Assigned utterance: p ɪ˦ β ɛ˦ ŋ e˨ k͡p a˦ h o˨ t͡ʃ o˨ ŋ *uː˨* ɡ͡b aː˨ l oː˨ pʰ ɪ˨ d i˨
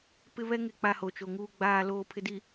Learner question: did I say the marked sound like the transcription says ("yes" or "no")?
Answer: yes